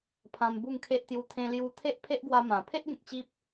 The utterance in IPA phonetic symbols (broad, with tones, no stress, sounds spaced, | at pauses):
pʰ ã˧ m b u˥˧ ŋ kʰ e˦ ʔ t̪ j u˧ t̪ʰ ẽ˧ l j u˧ t̪ʰ e˦ ʔ pʰ e˦ ʔ ɡ w a˧ m ã˨˩ pʰ e˦ ʔ ɡ ẽ˨ k̚ t͡ɕ i˦ p̚